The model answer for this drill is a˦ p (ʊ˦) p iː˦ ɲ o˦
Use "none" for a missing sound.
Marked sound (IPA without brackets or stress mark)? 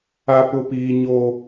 ʊ˦